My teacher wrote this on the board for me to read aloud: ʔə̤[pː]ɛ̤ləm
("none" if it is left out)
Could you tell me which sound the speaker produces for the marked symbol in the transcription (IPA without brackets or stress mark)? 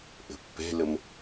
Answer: pː